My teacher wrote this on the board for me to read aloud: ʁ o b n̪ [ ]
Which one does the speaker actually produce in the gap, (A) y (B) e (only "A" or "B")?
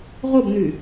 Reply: A